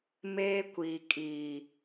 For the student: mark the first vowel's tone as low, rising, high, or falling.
high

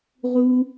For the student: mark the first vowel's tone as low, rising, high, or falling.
high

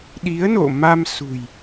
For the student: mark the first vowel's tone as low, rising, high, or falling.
rising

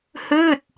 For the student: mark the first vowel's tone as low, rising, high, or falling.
falling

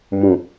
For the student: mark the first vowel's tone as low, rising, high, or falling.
low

